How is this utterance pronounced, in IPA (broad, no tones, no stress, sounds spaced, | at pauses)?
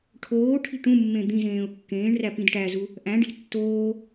ʈʰ oː ʈʰ i̤ ʈ ũ mː ẽ d̪ ĩ z ẽː ʊ̯ kː ẽː ɳ r æ p ĩ d ʈ æ z u | ʔ æ̃ ɖ i̤ tː oː